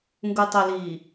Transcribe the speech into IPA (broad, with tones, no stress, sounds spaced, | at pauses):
ŋ ɡ u˨ tˤ ə˨ l iː˨